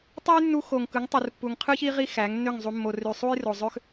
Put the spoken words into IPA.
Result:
tˤ ɑ˦ j nː u˧ x o˨ ŋ k ɯ˨˦ ŋ tˤ u˨ r pː u˨ ŋ qʰ ɯ˦ ç i˦ ʁ i˦ x æ˨˦ ŋ nː ø˦˨ ŋ zˤ u˧ mː o˨ r y˨ sˤ u˦ j r o˨ zˤ ø˦ x

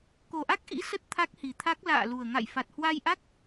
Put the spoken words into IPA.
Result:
k o˨˩ ʔ a˦˥ k̚ ʔ ḭ˧˥ s ə˦˥ t̚ t̪ʰ a˦˥ k̚ h i˨˩ t̪ʰ a˦˥ k̚ l a̰ː˧˨ l u˨˩ ə̯ ŋ a̰˧˨ j f a˨˩ t̚ h w a˧ j ʔ a˦˥ k̚

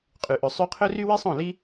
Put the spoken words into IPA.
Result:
qʼ y˨ ʔ ɵ˨ sˤ y˧ qʰ ɵ˦ r y˦ w i˦ sˤ õ˦˨ l i˦

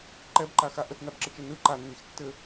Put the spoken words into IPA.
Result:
ǃ ɛ b ǃ a x a ʔ ə t n a b ǁ ə t͡ʃ ɘ n ɯ ǃ a nː i x tː ɘ

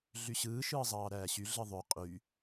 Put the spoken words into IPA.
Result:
ɮ y ɕ ɯː ʃ ɯː zˤ ɑː ɾ æː ɕ y ɮ ɯ ðˤ ø qʼ y

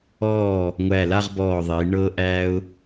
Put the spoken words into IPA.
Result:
ɔː˧˩ | ŋʷ æ˧˩ l a˥˧ ʁ b ɔː˧˩ ðˤ i˩˧ ɳ ɤː˧ ʔ æː˧ ʊ̯

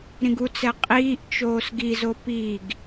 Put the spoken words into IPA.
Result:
ɾ ĩ ɡ u t͡s ɛ qʼ iː ʔ t͡ʃ oː s ɡ i z o p i ɡ

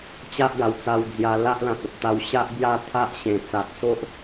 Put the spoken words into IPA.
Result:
t͡ɕ a˦ ʔ ɡ a˨˩ w t͡s a˧ w d͡z j a˧ l a˦ ʔ l ã˨ t̚ ə˨ p̚ t̪ a˧ w ɕ a˦ ʔ b j a˦ t̪ʰ a˦ ʔ ɕ ẽ˨˩ t͡s a˨ t̚ s o˦ ʔ

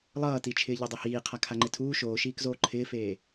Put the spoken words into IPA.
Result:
lˠ ʌː t i t͡ʃʰ ɪː ʎ e dˤ e h iː qʰ a kʰ a ŋ͡ǃ e tʰ uː ʃ oː ʃ iː k z oː ǃʰ ɪː f eː

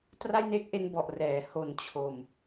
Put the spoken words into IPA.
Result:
t r a˥˩ j n e˦˥ k̚ ʔ e˧ n b ɔ˨˩ ʔ r ɛː˩˦ h o˨˩ n t͡ɕʰ o˨˩ m

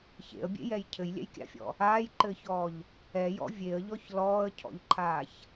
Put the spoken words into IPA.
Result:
ç ḛ ə̯ bʲ ḛ j ɛ j cʰ ɘ j lʲ ɛ̰ j kʲ a̰ fʲ ɔ̰ | aː j ǃ ɘː ç ɔː ʎ | ɛ j ɔ̰ vʲ e ə̯ ʎ ɔ ç l ɔː ə̯ cʰ ɔ̰ ʎ ǃʰ aː ç

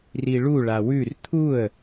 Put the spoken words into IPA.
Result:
r i ɭ u ɭ a w ʉ r t̪ʰ u ə̯

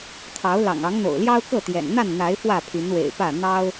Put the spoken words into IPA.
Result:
t̪ʰ ɑ˨˦ ʊ̯ l ɑ̰˨˩ ŋ ɑ˨˦ ŋ n̪ o̰˨˩ ʊ̯ l j ɑ˦ ʊ̯ k ɤ˥˨ t̪ j ɛ̰˨˩ n n̪ a˥˨ n n̪ a˨˦ ɪ̯ f w ä˥˨ pʰ y˨˦ n w ḛ˨˩ ɪ̯ p ä˥˨ n̪ ɑ˦ ʊ̯

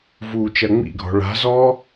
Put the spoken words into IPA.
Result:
v uː t͡ʃ ɐ ŋ͡m ḭ ɡʱ ɔ̤ ɭ a̤ z ɔː

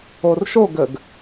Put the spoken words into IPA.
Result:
o r ʃ o ɡ ə ɡ

